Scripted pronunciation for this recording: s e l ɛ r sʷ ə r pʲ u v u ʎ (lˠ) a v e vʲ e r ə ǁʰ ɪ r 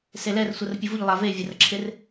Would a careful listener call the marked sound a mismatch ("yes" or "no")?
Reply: no